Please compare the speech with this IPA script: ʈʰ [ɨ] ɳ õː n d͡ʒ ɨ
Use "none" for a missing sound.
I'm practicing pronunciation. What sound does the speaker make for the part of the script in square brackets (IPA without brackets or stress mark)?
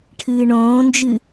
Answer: ɨː